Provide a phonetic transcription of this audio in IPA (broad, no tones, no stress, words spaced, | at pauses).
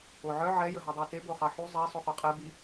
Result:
oʕœ ʕɛ jəɦudˤœte boχɑħu zˤɛ sˤuχoqʼe bi